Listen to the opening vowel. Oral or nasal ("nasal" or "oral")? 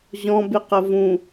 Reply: nasal